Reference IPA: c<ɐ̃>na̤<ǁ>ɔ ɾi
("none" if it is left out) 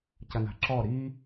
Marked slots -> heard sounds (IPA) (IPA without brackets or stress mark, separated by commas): ɐ, ǁ